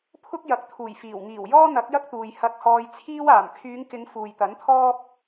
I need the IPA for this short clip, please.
pʰ ʊ˥ k̚ j ɐ˨ k̚ t̪ʰ uː˨˩ j f iː˨˩ w ŋ iː˨˩ w j ɔː˥ n̪ ɐ˨˥ k̚ j ɐ˥ k̚ t̪ uː˨ j h ɐ˧ k̚ h ɔː˧ j t͡sʰ iː˥ w aː˨˩ m kʰ yː˨˧ ŋ k ɪ˨˧ ŋ f uː˨ j t̪ ɐ˨˥ n t̪ʰ ɔː˥ p̚

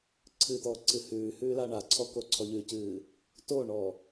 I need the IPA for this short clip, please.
ǀʰ ɨ t̪ ɔː ǀ ɨ h ʉː h ʉː l a ɳ a ǀʰ ɔ k o ǀʰ ɔ ʎ ʉ c ɨː | t o ɳ ɔ

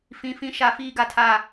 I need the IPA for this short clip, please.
f ĩ˦ f ĩ˦ ʃ a˦ f iː˦ ɡ a˦ tʰ a˦

